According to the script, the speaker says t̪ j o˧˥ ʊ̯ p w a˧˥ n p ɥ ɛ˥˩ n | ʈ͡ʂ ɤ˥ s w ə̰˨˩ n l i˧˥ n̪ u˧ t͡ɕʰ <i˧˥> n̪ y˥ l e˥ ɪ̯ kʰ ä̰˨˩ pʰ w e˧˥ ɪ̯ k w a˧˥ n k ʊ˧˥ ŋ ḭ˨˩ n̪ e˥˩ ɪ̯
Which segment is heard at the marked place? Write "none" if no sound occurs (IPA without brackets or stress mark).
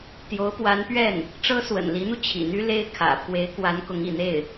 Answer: ḭ˨˩